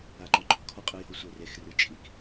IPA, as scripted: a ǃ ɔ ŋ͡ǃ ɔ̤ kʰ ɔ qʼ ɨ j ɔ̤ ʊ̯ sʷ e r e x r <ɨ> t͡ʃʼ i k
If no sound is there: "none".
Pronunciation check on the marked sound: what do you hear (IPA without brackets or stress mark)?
ɨ